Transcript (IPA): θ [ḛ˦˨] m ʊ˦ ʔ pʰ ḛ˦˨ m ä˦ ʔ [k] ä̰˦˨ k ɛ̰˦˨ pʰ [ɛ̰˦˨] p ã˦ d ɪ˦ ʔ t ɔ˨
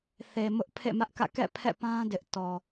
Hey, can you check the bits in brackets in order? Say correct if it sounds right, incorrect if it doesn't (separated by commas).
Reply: incorrect, correct, correct